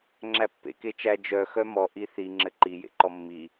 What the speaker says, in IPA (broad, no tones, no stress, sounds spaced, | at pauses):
ŋ͡ǁ æ pː ḛ k e t͡ʃ æ d͡ʒ œ x œ m ɔ ʔ i θ i ŋ͡ǁ ɘ ǃ i j ḛ ǃ ɔ mː i